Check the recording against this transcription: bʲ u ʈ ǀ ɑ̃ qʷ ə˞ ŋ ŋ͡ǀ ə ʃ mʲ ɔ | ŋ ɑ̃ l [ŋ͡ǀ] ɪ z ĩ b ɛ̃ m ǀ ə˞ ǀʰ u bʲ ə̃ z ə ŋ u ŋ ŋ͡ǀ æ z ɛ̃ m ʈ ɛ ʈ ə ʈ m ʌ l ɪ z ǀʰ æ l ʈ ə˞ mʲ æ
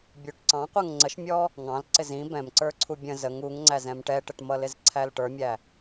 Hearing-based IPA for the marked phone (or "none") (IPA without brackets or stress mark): ǀ